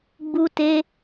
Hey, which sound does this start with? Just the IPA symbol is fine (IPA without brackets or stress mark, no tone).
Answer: ɡ͡b